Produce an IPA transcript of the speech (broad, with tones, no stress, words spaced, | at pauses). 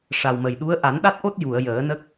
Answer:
ʂa˨˩wmə˨˩jɗu˧˥ə̯ ʔa˨˩˦nɗa˦˥t̚ʔo˦˥t̚ ju˨˩˨ə̯jəː˨˩˦nə˦˥k̚